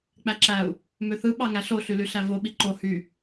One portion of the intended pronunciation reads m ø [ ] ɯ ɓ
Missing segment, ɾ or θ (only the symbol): θ